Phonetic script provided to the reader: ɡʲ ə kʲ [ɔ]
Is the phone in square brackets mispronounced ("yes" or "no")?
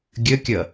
yes